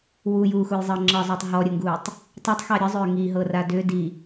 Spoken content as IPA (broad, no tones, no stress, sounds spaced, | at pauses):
w u j uː x u j zˤ ɤ ŋ͡ǁ ɤ zˤ u tˤ ɦ ɔ ɾʲ ə ŋ ɡ uː tˤ | tˤ ɐ tˤ x ɑ ɾʲ ə zˤ ʏː ŋ i ɦ ɤ r a d ʏ d i